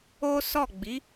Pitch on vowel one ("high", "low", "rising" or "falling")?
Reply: high